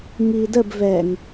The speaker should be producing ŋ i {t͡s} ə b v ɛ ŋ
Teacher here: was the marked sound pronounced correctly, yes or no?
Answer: no